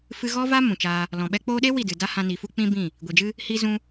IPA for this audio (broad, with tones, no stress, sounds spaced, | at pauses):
f ɨ˧ ɣ ɔ˦ v a˦ m ũ˨ t͡ʃ aː˧ | l ɔ̃˨ ɓ ɛ˦ k͡p oː˧ ɗ e˦ w i˦˨ d ɨ˨ d a˦ h ã˧ n i˨ f u˦ k͡p ĩ˦ b ĩ˦˨ | ɡʷ i˨ d͡ʒ ɨ˦ | h i˧ z ũ˧